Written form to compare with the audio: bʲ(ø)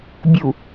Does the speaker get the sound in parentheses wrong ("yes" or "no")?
yes